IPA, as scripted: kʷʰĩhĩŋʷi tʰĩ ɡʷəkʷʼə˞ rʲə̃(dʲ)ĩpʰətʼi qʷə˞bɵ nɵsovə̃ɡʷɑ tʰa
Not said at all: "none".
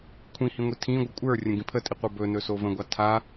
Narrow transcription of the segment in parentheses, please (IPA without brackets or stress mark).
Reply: ɡ